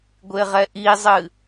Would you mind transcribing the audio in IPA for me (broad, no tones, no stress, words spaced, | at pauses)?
ɡʷeʁɛʔizˤɨ